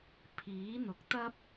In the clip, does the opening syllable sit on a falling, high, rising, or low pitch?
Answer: rising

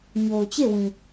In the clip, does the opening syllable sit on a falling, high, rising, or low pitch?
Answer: low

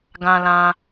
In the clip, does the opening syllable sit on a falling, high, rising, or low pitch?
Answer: high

